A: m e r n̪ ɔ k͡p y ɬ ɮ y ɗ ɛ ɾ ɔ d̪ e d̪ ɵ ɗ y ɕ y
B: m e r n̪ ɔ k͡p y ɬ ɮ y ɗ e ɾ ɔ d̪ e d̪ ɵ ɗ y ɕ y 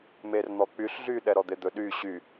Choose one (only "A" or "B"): A